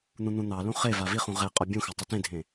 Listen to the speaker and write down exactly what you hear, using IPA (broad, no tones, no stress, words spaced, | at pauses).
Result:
n̪ũn̪ũn̪ɑlũ χeva viχũ ʁe qʼɔbʲũxa tˤitẽdʱẽ